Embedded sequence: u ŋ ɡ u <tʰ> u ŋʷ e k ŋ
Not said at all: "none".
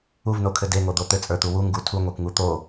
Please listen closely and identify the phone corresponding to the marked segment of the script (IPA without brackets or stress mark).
tʰ